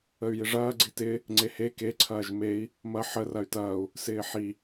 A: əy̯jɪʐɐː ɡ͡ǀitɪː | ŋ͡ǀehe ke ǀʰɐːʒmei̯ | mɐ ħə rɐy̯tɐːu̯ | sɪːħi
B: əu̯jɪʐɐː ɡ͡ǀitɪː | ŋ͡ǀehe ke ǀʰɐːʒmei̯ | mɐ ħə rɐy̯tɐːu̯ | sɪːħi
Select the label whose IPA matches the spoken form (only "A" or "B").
A